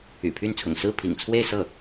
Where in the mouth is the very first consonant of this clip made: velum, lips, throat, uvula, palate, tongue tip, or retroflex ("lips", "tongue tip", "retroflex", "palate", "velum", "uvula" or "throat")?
lips